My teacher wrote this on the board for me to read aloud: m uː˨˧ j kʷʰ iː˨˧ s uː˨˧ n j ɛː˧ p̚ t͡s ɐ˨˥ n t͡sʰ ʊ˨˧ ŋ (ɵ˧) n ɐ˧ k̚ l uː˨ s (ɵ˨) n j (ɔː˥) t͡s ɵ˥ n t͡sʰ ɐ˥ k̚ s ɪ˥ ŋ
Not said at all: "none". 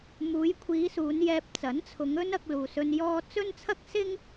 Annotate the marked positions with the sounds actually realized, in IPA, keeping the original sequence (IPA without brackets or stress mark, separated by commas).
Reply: ɵ˥, ɵ˧, ɔː˥